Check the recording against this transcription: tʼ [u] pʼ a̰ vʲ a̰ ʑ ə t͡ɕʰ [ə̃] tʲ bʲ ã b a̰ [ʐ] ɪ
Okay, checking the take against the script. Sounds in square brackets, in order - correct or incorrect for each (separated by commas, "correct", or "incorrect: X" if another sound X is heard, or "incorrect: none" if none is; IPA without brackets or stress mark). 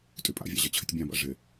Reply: incorrect: y, incorrect: ə, correct